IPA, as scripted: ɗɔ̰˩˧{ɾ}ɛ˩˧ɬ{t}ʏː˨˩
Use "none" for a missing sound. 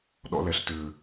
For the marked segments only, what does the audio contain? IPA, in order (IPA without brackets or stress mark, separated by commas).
l, t